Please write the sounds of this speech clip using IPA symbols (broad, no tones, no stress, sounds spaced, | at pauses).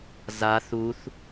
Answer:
z a θ u θ